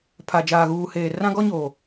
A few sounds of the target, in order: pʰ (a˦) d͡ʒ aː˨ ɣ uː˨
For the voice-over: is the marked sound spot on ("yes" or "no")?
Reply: no